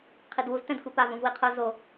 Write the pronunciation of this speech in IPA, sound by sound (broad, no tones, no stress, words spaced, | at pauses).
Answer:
qʰidwuz tɛ̃dxʷipav ũvwiqʰo zo